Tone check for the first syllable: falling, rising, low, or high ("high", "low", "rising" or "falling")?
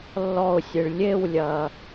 falling